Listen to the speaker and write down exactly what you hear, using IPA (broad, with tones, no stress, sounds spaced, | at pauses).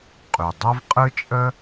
qʼ y˩ dˤ ɐ˥ v qʼ ɯ˥ t͡ʃʼ ə˥